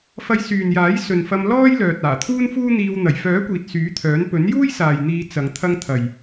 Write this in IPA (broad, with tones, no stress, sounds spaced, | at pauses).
f ɐ˧ j s yː˨ n j aː˨˥ j s ɵ˨ n f ɐ˧ m l ɔː˥ j l œː˨ t̚ aː˨˩ t̪ʰ uː˥ n f uː˥ n̪ iː˧ w n̪ ɐ˨˩ j f œː˨˥ kʷ iː˨ t̚ s yː˨˥ t̪ʰ œː˨˥ n p ɵ˨˥ n j uː˥ j s aː˨ j n̪ iː˨˧ t͡s ɐ˨˧ ŋ t̪ʰ ɐ˧ ŋ t̪ʰ ɐ˨ j